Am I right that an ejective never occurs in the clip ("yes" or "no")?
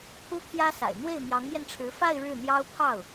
yes